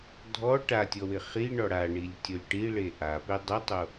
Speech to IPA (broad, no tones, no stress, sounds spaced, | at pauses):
dʱ ɔ ʈ a tʲ ɔ w ɪ χ i ɳ ɔ ɽ a ɳ i lʲ tʲ o lʲ ʈ i ɭ e ʔ a p e dˤ ʊ tˤ o